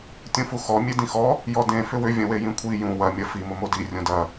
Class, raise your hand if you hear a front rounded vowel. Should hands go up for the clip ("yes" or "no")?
yes